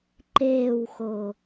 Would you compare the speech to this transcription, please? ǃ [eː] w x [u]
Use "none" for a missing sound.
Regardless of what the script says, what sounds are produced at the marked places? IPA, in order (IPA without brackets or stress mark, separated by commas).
eː, o